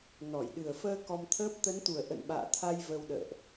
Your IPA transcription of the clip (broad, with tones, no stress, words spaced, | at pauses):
nɔ˧˩jɗɨ˨˩ə̯fəː˧ kɔ˧mt̪ʰəː˦˥p̚ t̪ə˨˦nt̪u˨˩ə̯ ʔə̰˧˨nɓa̰ː˧˨t̪ʰa˧j və˧wɗə̰ː˧˨ʔ